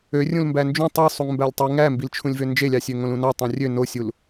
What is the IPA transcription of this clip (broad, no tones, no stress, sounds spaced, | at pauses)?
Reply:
ø rʲ ũ l m b æ n d͡ʒ ũ tˤ ɯ sˤ u ŋ m b æ lʲ tˤ i ŋ æ m b i l t͡ʃʰ ũ lʲ v ø n d͡ʒ e lʲ ɑ sʲ ø ŋ õ l ũ n ɑ tˤ õ rʲ ø n o sʲ u l